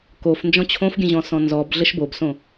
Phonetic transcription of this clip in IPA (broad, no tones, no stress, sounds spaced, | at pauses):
k o f n d͡ʒ ɔ̃ t͡ɕʰ õ f ɡʲ ə̃ ʑ ɔ̃ s ɔ̃ n z ɔ b ɮ ə ʃ b o b s õ